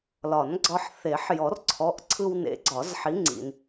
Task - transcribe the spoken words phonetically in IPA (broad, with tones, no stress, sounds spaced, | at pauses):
l ɒ˨˩˦ n ɡ͡ǀ ɒ˧ ħ θ e˨˩˦ ħ j ɔ˨˩˦ r ǀʰ ɔ˩˧˩ ʔ ǀʰ ɯ˧ w n ḛ˨˥ ɡ͡ǀ ɒ˨˩˦ z ħ i˨˥ ŋ͡ǀ ḭ˩ n